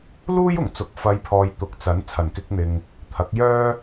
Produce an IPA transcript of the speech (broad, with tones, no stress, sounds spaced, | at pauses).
l uː˥ j ʊ˨˩ ŋ t͡s ʊ˨˥ k̚ f ɐ˨˧ j pʰ ɔː˨ j t̪ ʊ˨˥ k̚ t͡s ɐ˨˥ n t͡sʰ ɐ˨˩ n k ɪ˧ k̚ n̪ ɪ˨ ŋ | t̪ʰ ɐ˨˥ k̚ j œː˥